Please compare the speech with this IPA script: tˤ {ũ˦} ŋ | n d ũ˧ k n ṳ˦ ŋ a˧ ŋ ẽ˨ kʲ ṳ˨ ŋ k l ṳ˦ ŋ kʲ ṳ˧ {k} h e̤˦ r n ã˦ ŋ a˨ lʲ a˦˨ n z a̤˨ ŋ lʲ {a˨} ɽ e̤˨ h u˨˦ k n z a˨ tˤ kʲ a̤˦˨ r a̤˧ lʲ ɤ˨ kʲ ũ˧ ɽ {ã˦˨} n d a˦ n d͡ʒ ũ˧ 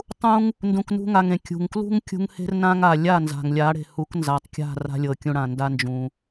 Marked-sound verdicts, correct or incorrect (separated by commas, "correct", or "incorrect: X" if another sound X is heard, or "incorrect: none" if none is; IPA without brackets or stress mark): correct, incorrect: ŋ, incorrect: a˨˦, incorrect: ã˨